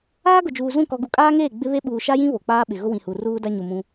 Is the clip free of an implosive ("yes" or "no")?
no